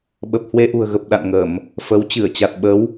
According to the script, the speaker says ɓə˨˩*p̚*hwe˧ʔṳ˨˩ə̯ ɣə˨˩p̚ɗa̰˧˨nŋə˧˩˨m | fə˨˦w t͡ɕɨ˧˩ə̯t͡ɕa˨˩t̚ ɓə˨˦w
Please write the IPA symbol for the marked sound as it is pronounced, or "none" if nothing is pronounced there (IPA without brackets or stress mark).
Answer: p̚